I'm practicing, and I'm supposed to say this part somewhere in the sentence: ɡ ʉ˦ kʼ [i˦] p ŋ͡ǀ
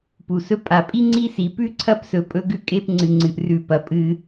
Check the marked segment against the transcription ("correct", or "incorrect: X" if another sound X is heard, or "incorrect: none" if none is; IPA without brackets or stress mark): incorrect: e˦